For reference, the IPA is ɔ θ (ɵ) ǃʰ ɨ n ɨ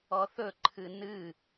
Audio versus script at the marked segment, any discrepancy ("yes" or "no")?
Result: no